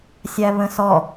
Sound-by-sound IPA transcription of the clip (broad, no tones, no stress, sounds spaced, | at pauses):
sʲ æ β ə̃ s ɔ